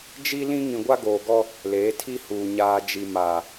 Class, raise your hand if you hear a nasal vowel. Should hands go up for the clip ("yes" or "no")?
yes